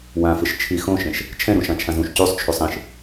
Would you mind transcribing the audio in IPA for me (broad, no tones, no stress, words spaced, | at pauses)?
wãfɨʃ t͡ʃʰi xõʃẽʃ | t͡ʃʰɛ̃ɾũʃãt͡ʃʰãz ũʃ cusˤt͡ʃʰusˤ ẽʃ